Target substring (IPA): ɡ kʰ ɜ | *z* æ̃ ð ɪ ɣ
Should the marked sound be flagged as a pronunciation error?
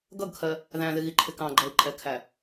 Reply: yes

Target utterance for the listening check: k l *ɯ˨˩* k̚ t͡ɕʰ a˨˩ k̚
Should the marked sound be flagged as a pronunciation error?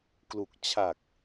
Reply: yes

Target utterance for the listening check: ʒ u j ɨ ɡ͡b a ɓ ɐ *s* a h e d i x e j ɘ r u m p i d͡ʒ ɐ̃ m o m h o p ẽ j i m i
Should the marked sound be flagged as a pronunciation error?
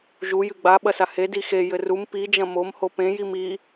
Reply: no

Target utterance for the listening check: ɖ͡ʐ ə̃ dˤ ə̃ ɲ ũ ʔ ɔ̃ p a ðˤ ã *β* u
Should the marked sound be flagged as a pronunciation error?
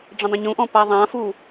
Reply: yes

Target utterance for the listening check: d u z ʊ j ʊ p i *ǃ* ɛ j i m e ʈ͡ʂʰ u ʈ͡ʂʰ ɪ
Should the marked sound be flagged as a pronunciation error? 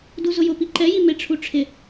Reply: no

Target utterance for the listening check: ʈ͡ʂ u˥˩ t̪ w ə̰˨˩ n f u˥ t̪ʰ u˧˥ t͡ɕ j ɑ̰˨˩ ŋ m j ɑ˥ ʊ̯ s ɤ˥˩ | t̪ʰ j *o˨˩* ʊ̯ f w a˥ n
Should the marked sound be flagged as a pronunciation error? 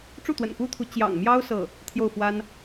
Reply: yes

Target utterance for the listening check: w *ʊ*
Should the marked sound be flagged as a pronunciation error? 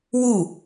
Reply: yes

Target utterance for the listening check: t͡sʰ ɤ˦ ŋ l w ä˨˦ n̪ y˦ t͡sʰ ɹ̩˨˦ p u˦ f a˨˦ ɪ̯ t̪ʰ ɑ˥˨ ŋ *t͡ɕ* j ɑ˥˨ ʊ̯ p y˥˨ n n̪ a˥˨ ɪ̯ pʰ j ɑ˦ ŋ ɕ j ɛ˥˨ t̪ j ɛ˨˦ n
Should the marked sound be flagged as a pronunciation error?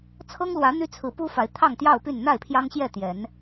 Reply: yes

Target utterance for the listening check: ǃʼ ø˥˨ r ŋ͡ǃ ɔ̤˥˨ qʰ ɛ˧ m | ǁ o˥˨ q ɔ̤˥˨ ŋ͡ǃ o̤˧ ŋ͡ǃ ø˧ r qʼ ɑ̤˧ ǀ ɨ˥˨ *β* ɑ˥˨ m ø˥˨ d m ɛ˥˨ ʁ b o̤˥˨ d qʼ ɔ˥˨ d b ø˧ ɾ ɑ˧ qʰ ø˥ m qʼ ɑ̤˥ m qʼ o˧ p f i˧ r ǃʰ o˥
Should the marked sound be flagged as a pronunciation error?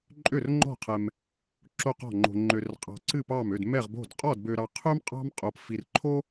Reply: yes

